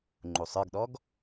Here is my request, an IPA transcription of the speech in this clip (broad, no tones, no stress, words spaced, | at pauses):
ŋ͡ǃusˤə˞ɡɗɔɡ